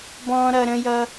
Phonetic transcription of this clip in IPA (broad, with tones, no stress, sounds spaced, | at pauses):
b ɔ̃ː˦ ɾ ʌ˧ ɾ ə̃˦ j ʌ˦